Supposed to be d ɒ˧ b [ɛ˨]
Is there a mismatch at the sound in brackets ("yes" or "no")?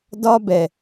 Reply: no